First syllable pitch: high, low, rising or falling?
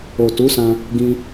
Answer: low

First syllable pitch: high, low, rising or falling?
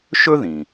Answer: high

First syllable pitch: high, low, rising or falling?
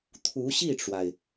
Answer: rising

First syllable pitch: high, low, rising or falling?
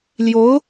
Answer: rising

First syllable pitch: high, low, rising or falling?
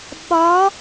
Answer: rising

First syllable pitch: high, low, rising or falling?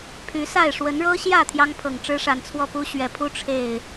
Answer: rising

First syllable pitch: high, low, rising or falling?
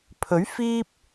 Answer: rising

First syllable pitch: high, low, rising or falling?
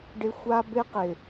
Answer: high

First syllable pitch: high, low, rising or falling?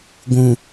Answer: low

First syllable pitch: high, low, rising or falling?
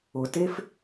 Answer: low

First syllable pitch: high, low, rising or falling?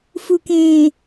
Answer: low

